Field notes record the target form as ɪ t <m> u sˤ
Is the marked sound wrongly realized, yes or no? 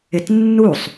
yes